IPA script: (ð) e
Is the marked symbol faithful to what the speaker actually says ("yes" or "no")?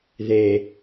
yes